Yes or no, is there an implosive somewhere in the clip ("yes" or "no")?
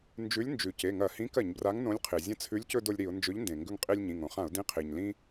no